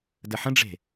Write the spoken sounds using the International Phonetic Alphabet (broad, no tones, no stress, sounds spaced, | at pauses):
d ə ħ ə̃ ɖ͡ʐ e̤